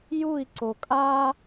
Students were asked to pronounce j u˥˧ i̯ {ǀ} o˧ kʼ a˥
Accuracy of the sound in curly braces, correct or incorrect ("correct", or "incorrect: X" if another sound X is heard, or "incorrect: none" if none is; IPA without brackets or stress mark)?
correct